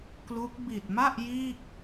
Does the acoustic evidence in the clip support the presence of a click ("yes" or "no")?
no